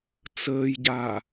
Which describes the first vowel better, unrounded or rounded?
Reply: unrounded